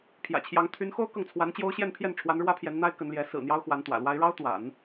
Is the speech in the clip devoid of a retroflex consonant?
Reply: no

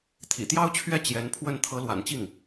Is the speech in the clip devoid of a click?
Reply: yes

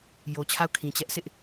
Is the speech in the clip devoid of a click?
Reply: yes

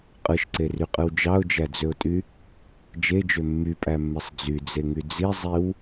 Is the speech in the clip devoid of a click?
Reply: no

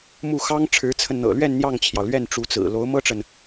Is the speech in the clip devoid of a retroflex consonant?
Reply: no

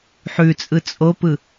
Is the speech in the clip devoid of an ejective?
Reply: no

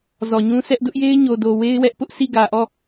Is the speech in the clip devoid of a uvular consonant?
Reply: yes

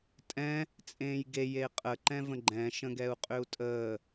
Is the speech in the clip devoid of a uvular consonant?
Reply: no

